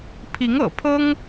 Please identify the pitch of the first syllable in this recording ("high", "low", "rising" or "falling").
rising